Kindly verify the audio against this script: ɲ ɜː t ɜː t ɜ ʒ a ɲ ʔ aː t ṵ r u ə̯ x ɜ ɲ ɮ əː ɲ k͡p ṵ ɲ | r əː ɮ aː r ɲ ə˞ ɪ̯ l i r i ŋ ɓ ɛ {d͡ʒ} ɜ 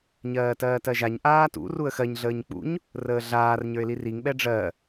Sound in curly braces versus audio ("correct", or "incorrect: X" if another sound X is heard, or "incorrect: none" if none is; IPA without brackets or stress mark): incorrect: ɖ͡ʐ